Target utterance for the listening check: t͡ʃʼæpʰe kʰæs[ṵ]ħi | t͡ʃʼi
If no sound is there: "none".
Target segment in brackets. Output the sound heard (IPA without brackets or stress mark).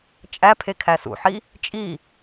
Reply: ṵ